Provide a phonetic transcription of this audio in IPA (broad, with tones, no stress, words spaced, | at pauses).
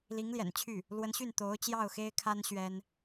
li˧˥ŋ ljɛ̰˨˩nt͡ɕʰy˥˩ | lwə˧˥nɕy˥˩n t̪o˧˥ʊ̯t͡ɕjɑ˥˩ʊ̯xe˥ɪ̯kʰa˥n ɕɥɛ˥n